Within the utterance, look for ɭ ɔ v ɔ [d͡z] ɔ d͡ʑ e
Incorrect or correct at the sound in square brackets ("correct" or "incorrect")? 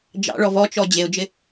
incorrect